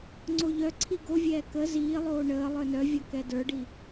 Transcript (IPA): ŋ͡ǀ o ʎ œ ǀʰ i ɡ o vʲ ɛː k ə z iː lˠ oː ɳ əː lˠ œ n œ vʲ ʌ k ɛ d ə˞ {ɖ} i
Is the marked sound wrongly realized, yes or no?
no